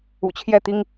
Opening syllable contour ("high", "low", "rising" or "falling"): low